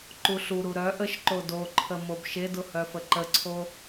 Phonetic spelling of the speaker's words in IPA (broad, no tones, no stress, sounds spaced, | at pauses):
ǃ u ɬ u ɾ u ɾ œ ʔ ə ʃ ǃ o d o ǃʰ ə m o b ʃ e d ʊ h œ f ə ǃ ə ǀʰ o